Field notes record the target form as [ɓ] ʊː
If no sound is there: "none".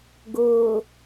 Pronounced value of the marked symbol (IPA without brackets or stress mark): ɡ